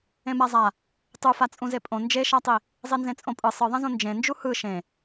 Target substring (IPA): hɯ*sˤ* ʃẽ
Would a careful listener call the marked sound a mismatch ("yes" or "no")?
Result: yes